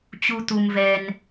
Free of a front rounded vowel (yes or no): yes